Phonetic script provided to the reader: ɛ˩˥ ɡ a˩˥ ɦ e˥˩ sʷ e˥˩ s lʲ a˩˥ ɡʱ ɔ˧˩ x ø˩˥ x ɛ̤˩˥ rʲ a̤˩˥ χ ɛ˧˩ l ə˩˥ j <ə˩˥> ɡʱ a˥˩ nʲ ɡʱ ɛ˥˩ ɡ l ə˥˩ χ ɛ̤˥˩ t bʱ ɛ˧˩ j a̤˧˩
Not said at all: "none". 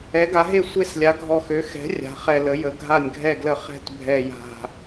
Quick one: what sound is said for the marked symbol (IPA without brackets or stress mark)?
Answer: ə˩˥